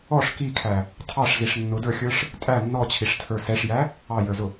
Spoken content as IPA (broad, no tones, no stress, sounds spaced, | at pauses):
ɔ ʂ k i kʰ æ | tʰ ɑ ʂ z i ʂ nː ʊ d ə˞ xʲ ə˞ ʂ | tʼ æ nː ɔ t͡ɕʰ i ʂ tʰ ə˞ s ɛ ʂ j æ | ɑ j ə˞ z ʊ